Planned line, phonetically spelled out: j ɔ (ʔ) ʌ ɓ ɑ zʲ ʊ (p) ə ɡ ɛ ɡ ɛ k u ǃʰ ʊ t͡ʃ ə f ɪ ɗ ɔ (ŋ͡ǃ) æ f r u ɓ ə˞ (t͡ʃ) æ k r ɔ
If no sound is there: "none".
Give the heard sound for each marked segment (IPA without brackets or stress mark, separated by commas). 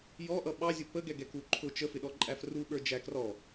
ʔ, p, ǃʼ, d͡ʒ